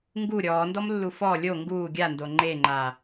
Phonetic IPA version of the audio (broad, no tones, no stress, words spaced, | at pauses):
ŋɡu ɾʲɔːndɔmlːu fɔ lʲo ŋɡuː ɡʲando ŋ͡ǃeŋ͡ǃa